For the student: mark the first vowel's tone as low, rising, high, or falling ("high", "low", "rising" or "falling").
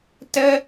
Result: high